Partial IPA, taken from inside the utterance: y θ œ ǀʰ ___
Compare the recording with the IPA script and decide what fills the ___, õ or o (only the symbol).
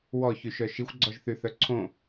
õ